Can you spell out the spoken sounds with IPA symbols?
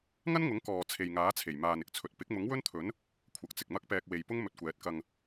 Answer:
ŋ ɐ˥ n ŋ ʊ˨˥ ŋ k ɔː˨ t͡sʰ e˨ j ŋ aː˨˥ t͡sʰ e˨˩ j m aː˨ n ɪ˧ k̚ t͡sʰ ɵ˨ t̚ p ɪ˨˥ k̚ m ʊ˨˥ ŋ w ɵ˥ n t̪ʰ ɵ˨˥ n | kʷʰ ɐ˨˥ k̚ t͡s ɪ˨ k̚ m ɐ˥ k̚ p ɛː˧ k̚ w e˨ j p ʊ˥ ŋ m ɵ˧ t̚ kʷ ɛː˨˥ t̚ k ɐ˧ ŋ

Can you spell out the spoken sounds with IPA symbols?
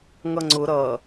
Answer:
ŋ ʌ ŋ͡ǀ ʊ ɾ ʌ

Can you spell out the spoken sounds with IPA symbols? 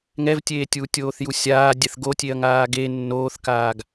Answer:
ŋ ɛ v tʲ eː tʲ uː tʲ oː θ j u sʲ aː dʲ ɛ θ ɡ o tʲ e ɐ̯ ŋ aː ɡ e nː oː θ k aː ɡ

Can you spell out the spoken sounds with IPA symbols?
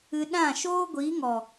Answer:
ɨ˧ ɗ ã˦˨ ʃ oː˦ ɡʷ iː˨˦ ŋ ɔ˨

